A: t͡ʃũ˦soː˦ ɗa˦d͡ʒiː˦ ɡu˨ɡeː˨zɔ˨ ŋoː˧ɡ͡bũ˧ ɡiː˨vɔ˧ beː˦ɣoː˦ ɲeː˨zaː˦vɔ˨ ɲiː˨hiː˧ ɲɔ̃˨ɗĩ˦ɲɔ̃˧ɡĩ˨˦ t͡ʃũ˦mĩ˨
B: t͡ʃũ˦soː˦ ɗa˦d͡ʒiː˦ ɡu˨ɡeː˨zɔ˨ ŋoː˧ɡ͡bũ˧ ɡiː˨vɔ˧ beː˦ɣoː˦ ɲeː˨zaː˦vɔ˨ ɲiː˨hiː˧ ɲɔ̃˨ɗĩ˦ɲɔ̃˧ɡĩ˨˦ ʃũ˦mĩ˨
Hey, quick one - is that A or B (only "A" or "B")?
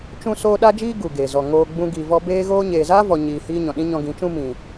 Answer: A